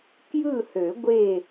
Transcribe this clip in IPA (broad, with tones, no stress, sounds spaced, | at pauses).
k j ɯ˥˨ h ø˨˩˦ ɡʷ e˧˩